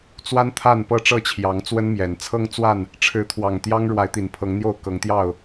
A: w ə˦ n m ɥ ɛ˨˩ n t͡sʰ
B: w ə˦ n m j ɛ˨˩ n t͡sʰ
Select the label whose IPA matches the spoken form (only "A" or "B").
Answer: B